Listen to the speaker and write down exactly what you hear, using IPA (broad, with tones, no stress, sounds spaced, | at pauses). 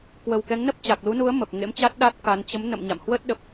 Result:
k w ə˨˩ w k ɛ˨˦ ŋ n ə˦˥ p̚ t͡ɕ a˨˩ k̚ l u˨˦ n u˨˦ ə̯ m ə˨˩ p̚ ŋ ḛ˧˥ m t͡ɕ a˦˥ t̚ ɗ a˦˥ t̚ k a˨˦ n t͡ɕ ə˨˦ m n ə̰˧˨ m ɲ a̰˧˨ m h w ə˦˥ t̚ ɗ ə˨˩ p̚